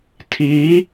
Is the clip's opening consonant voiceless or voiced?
voiceless